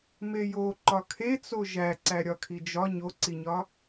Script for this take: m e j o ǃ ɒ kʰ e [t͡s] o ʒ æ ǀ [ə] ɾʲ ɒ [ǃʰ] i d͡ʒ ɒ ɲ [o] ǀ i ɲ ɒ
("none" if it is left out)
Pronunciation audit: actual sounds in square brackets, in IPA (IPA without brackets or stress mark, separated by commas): t͡s, æ, kʰ, o